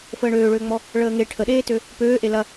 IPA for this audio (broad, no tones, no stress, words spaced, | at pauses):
fəːɳøːɭøːŋ͡mɔ | ɭəːŋe ʈʰəɗeːtø | pøːʔe lɐ